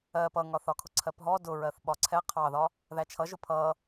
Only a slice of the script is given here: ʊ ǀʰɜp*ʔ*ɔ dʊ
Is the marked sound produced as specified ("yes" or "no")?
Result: no